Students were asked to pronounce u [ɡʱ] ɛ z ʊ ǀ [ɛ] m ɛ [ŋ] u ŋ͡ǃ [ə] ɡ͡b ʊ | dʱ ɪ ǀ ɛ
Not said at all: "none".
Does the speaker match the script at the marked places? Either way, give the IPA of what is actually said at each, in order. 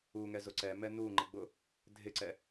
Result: ŋ, ɛ, n, ɪ

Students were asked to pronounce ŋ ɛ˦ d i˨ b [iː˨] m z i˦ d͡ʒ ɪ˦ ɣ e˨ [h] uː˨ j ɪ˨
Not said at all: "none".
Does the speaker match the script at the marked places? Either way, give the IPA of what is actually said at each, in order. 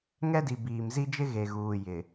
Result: iː˨, ɣ

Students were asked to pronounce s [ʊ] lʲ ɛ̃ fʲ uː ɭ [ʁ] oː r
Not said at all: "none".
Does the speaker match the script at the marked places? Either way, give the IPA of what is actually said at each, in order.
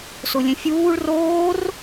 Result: ʊ, r

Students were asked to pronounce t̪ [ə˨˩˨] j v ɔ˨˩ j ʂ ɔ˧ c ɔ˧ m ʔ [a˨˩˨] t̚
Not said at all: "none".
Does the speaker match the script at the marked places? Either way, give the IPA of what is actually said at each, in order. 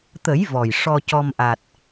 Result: ə˨˩˦, a˨˩

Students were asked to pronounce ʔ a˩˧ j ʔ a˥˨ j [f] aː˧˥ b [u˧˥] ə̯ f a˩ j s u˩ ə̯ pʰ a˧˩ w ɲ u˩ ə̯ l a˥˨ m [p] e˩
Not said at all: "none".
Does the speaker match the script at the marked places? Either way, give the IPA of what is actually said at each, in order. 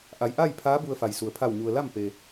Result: pʰ, u˧, p

